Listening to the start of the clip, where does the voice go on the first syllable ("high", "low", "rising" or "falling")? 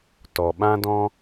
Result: low